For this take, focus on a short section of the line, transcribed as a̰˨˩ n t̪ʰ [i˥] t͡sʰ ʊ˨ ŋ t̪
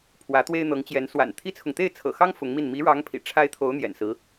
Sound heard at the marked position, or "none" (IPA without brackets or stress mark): i˥